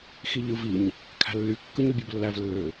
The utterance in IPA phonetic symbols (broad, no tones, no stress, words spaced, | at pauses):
xiʎɯviɲ | kʰæ̤lːy kːɯɲybʲoblːæv lːø